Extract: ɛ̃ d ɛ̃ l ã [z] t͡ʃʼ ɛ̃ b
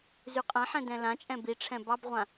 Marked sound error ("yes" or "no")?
yes